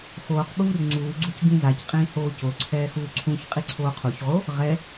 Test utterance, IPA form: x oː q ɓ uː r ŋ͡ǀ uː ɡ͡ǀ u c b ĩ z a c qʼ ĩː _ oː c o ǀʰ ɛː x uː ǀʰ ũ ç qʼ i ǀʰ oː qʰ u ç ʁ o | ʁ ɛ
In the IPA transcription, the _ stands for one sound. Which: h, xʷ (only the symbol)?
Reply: h